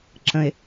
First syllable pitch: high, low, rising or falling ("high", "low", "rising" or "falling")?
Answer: low